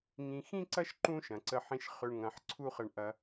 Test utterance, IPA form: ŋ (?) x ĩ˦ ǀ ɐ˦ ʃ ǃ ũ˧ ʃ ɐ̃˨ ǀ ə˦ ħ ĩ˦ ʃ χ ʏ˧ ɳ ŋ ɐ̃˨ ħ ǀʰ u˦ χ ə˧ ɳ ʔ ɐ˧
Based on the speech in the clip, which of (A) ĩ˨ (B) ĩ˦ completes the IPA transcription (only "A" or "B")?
A